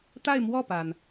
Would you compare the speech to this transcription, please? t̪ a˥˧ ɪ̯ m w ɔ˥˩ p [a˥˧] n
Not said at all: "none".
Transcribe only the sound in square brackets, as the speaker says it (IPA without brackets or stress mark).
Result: a˩